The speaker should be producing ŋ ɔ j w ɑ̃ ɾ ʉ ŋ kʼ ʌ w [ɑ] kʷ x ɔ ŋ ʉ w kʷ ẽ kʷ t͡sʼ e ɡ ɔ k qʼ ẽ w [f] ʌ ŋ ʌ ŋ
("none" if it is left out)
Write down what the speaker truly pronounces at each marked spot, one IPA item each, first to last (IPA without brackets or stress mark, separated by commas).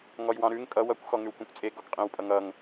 ʌ, pʼ